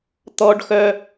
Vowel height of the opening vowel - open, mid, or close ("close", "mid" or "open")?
mid